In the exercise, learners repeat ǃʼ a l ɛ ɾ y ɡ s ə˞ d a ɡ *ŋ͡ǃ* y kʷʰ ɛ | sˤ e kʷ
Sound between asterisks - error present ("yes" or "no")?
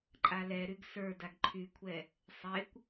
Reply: yes